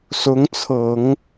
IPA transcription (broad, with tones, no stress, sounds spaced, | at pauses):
s ʊ˧˥ ŋ t͡sʰ ɤ˨˩˦ ŋ